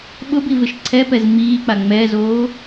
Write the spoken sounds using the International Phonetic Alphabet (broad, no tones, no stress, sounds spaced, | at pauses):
ɓ ʊ b i v ɪ ʃ ǀʰ ɛ p ɛ z m iː k͡p a ŋ͡m ɛ z oː